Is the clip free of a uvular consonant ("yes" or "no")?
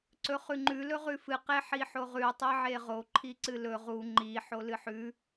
no